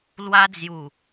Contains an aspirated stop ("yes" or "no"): no